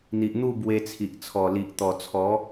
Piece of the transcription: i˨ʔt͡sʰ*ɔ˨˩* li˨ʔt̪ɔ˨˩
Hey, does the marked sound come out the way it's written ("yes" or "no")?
yes